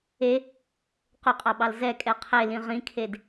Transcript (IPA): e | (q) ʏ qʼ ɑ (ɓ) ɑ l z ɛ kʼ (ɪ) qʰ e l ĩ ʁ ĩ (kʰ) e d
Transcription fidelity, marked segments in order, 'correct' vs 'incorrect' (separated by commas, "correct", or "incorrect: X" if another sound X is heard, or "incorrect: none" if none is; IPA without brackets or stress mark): correct, correct, incorrect: ɛ, correct